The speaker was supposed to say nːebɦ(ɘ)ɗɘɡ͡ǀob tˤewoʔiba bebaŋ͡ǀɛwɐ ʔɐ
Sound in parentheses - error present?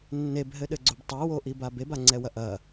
no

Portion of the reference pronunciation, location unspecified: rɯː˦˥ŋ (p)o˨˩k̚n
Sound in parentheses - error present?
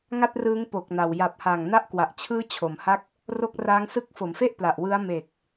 no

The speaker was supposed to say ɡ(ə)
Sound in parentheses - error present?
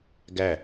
yes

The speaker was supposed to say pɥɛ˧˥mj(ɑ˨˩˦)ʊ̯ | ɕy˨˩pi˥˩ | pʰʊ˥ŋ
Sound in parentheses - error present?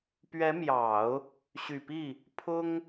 no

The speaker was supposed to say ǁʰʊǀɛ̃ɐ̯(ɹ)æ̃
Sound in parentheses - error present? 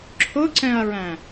no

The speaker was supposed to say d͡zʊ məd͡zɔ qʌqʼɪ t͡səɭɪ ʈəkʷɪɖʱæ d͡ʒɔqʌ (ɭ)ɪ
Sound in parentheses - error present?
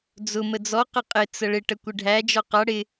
yes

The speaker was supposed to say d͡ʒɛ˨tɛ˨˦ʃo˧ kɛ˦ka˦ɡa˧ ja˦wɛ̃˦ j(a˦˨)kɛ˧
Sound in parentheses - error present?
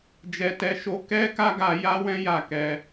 no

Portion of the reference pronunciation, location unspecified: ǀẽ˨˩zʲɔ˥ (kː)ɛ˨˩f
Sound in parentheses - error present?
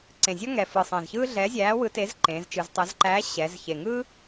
yes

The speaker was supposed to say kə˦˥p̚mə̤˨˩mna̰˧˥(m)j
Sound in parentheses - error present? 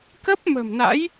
yes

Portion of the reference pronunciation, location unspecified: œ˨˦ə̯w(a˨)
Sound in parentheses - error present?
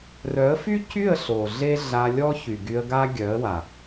no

